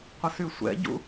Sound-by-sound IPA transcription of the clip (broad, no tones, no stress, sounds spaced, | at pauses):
qʷ ə s y sʷ ɛ̰ ɟ ṵ